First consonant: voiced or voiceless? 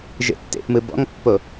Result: voiced